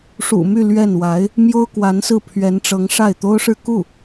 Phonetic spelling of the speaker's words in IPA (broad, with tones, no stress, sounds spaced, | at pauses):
ʂ ṵ˨˩ m y˥˧ l ɥ ɛ˥˩ n w a˧˥ ɪ̯ | m j o˥ ʊ̯ k w a˧˥ n s ɹ̩˥˩ pʰ ɥ ɛ˧˥ n ʈ͡ʂ ɤ˧˥ ŋ ʂ a˥˩ ɪ̯ t̪ o˥ ʊ̯ ʂ ɻ̩˥˧ k u˥˩